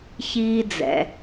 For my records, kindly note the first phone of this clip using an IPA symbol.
ç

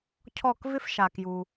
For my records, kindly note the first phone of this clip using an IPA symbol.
cʰ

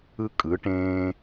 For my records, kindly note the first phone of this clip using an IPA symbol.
ɯ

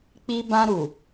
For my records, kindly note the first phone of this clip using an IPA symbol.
k͡p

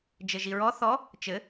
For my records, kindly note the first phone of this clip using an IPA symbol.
d͡ʒ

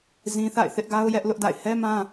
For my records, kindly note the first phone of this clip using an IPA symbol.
z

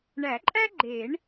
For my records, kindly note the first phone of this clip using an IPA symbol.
ɳ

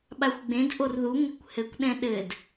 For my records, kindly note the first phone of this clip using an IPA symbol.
ɓ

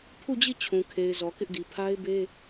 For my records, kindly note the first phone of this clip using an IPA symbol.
pʰ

